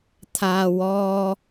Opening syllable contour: high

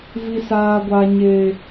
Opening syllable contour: high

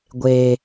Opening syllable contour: high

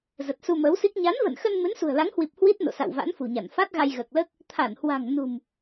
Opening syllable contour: low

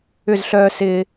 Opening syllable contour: falling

